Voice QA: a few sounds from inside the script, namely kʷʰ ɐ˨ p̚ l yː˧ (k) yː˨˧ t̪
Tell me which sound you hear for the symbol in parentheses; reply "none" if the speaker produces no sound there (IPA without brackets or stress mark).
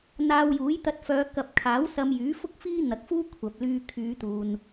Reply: kʰ